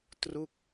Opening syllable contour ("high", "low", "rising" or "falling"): falling